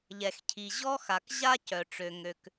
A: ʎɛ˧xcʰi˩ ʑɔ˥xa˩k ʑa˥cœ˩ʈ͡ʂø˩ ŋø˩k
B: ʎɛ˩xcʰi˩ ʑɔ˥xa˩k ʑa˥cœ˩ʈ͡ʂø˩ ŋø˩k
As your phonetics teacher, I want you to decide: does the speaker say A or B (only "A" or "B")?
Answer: B